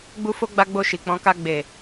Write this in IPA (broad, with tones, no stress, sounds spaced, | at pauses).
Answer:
ɡ͡b u˦ f o˦ ɡ͡b a˦ ɡ͡b o˦˨ ʃ i˨ k͡p ɔ̃˨˦ k a˧ ɡ͡b e˨